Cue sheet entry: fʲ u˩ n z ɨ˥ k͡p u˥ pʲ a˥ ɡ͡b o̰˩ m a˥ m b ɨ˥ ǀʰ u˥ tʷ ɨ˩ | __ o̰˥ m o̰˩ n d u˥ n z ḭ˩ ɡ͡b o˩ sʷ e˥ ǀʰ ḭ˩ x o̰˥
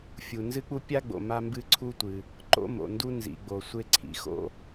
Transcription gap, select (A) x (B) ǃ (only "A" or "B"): B